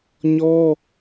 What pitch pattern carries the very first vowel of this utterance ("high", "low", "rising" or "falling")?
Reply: high